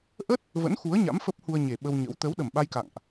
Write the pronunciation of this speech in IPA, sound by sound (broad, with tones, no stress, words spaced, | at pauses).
ʔə˦˥t̚ | və̰˧˥nxu˨˦ə̯ ɲa̰˧˥mfə˦˥p̚hu˧ə̯ɲe˨˩ ɓə˧wɲə̰˧˥w t̪əː˨˦wɗə˨˩mɓa˧j ka̰˧˨ŋʔ